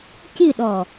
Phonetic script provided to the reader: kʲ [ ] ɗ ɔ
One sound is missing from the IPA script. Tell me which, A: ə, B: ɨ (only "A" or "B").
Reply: B